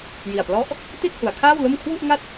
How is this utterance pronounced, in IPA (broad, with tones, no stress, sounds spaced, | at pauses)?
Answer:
j i˨˩ a̯ p l ɔ˦˥ ʔ | t i˥˩ t̚ h u˩˦ a̯ kʰ aː˥˩ w l o˥˩ m kʰ w u˥˩ ʔ ŋ a˥˩ t̚